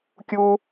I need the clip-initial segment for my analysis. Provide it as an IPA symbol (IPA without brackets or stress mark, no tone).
kʲ